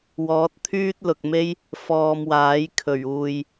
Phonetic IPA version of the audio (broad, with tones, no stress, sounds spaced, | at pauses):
w ɔː˨˥ t̚ t̪ʰ yː˥ t̚ l ʊ˨ k̚ m e˥ j | f ɔː˧ m w aː˨˥ j kʰ ɵ˨˩ ɥ uː˨ j